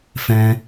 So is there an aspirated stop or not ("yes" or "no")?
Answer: no